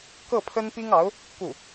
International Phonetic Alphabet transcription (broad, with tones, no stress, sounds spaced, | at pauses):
k ɤ˥˩ pʰ ə˥ n p i˥ ŋ ɑ˧˥ ʊ̯ | k u˥˩